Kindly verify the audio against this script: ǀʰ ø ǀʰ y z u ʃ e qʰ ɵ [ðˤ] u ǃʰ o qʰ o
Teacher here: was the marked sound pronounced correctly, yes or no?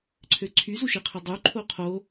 no